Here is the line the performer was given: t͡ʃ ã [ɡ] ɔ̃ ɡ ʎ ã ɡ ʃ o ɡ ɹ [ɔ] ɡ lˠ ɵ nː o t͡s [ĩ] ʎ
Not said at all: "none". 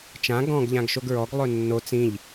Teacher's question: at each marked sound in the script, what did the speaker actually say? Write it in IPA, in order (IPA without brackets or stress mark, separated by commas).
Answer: ɡ, ɔ, ĩ